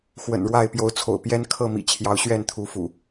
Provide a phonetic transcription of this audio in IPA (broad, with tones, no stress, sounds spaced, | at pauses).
x w ə̰˨˩ n ɻ w a˥˨ ɪ̯ p j o˨˦ ʊ̯ t͡sʰ o̰˨˩ ʊ̯ p j ɛ˦ n kʰ ɤ˥˨ m ḭ˨˩ t͡ɕʰ j ɑ˨˦ ʊ̯ ɕ ɥ ɛ˥˨ n t̪ʰ u˨˦ f ṵ˨˩